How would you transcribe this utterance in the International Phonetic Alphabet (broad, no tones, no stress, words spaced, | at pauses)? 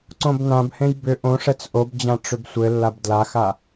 ǀõbnãbhẽj bʏ ʔõ ʂɛt͡sʔobd͡ʑã ʈ͡ʂʏbsʷɘlːab dlaxa